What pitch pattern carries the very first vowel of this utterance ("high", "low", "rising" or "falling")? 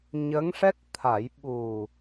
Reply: rising